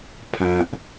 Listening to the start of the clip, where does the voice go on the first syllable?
low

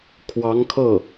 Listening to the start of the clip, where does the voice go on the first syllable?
rising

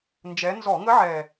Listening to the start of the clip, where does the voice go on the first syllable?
rising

